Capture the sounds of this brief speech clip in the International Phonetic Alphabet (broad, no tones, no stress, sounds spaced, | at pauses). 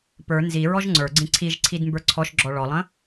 p ə˞ n z i ɹ ɔ ʒ ŋ͡ǀ ə˞ ɡ͡ǀ ĩ ǀʰ i ʒ ǀʰ i d m b ə˞ ǀʰ ɔ ʃ ɡ͡ǁ ɔ ɭ ɔ lˠ ə̃